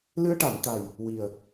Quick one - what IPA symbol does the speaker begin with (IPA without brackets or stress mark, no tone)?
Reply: l